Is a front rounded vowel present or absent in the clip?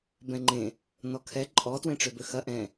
present